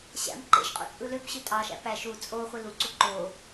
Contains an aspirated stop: no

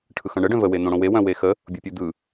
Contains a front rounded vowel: yes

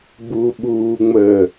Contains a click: no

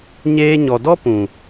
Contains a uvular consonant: no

